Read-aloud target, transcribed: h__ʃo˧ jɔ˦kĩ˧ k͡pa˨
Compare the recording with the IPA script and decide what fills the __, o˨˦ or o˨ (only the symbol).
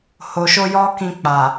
o˨